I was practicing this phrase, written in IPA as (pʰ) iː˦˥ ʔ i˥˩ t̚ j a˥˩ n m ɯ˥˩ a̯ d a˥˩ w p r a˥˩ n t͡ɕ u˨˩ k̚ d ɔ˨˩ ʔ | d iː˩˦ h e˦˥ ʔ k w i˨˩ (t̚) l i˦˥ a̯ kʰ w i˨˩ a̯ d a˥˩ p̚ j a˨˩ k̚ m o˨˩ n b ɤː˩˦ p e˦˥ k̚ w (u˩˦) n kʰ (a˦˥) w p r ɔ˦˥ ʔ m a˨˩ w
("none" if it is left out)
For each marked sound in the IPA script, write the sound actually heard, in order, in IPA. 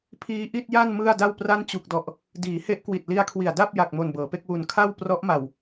pʰ, t̚, u˨˩, a˥˩

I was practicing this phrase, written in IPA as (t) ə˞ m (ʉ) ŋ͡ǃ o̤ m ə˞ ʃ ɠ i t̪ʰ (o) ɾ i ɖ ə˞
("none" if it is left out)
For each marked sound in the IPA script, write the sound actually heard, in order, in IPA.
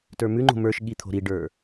t, ʉ, o̤

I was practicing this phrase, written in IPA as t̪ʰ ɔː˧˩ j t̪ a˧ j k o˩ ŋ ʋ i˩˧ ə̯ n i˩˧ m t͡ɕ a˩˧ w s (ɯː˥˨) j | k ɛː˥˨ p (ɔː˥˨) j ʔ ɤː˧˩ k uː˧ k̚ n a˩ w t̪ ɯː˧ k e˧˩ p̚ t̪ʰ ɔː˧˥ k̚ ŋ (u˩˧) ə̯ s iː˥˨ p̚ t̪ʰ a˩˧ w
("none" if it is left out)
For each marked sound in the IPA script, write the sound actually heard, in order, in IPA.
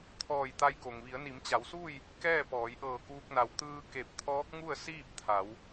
uː˥˨, ɔː˩˧, u˥˨

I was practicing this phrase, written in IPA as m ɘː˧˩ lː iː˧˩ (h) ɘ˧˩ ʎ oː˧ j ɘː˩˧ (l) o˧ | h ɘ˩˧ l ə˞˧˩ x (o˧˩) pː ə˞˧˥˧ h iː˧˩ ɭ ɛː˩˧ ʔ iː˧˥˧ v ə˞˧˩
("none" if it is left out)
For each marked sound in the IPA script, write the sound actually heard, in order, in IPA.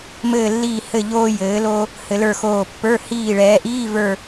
h, l, oː˧˩

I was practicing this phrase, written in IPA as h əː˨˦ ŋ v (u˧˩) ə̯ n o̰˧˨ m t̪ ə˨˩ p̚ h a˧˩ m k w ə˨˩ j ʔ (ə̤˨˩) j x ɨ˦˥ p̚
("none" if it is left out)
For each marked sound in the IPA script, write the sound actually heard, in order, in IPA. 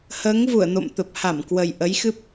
u˧˩, ə˨˦

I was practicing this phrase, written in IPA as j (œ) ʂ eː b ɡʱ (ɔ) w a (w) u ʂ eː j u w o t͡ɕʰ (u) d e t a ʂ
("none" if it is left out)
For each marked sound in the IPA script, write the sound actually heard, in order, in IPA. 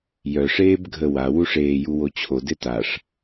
œ, ə, w, o

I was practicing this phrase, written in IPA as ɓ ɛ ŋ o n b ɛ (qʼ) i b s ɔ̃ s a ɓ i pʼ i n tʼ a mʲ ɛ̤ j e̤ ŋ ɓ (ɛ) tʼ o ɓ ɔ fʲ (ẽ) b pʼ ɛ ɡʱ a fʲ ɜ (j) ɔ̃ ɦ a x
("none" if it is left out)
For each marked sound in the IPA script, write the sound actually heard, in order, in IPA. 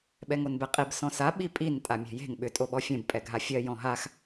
qʼ, ʏ, ẽ, j

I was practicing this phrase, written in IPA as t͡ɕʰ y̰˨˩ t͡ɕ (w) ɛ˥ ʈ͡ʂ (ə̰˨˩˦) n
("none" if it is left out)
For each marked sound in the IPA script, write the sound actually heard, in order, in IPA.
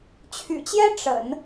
j, ə̰˨˩˦

